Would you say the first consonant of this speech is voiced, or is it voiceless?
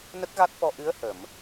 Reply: voiced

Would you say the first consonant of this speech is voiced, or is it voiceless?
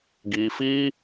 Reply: voiced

